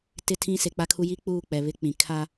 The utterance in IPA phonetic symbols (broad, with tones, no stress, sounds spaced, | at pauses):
t ɪ˦˨ tʰ ĩ˦ s e˨ k͡p a˦ kʰ u˦ j i˦ k͡p uː˦˨ k͡p ɛ˨ β ɪ˦ k͡p ĩ˨ kʰ a˦